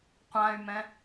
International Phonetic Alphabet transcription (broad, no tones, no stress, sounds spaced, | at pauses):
qʷ ã y̯ m ɛ̃